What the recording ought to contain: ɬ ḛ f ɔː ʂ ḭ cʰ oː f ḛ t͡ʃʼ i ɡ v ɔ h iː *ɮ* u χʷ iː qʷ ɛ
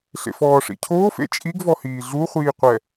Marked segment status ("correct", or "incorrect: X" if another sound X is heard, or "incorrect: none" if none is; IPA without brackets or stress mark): correct